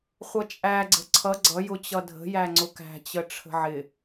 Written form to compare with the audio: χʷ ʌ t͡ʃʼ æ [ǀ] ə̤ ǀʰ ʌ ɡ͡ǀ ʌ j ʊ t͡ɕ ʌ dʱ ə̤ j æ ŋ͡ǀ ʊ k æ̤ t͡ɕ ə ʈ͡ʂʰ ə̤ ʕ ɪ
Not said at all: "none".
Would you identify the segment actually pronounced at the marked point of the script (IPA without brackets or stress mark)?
ɡ͡ǀ